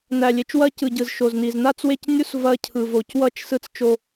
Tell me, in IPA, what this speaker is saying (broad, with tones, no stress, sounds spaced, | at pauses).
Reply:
n æ˨ lʲ e˨ t͡ʃ w ɐ˦ c ɯ˨ ɟ ɯ˨ z ʃ o˨ z n i˨ z n a˦˨ t͡s w e˦˨ c nʲ u˦ s v ɐ˦ cʰ ɯ˨ v o˨ c w ʌ˦ t͡ʃ s ɯ˦ t͡s t͡ʃ o˦